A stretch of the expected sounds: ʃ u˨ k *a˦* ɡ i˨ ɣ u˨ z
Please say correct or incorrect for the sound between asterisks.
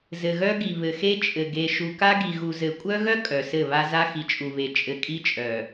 correct